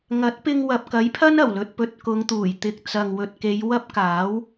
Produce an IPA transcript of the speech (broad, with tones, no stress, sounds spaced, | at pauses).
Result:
ŋ ɐ˨˥ t̚ p ɪ˧ ŋ w ɐ˨ p̚ k ɐ˨˥ j pʰ ɐ˥ n ɐ˨˩ w l ɵ˨ t̚ p ɵ˨ t̚ k ʊ˨˧ ŋ t̪ uː˨˩ j t̪ ɪ˨ k̚ t͡s ɐ˨ ŋ w ɵ˨ t̚ k e˨˧ j w ɐ˥ p̚ k aː˨˥ w